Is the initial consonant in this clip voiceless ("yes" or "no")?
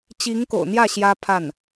yes